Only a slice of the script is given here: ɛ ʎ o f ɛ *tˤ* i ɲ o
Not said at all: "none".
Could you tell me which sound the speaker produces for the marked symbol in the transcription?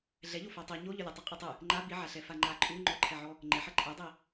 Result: tˤ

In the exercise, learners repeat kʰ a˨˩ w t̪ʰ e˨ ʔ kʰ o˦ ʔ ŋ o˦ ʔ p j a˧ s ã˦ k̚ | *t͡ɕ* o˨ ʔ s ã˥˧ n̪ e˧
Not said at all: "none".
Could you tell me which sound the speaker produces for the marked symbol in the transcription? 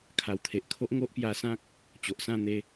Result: t͡ɕ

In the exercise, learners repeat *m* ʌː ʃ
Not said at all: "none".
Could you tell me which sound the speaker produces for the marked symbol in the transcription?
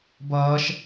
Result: b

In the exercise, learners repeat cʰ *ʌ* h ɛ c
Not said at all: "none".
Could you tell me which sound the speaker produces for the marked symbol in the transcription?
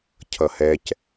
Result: ʌ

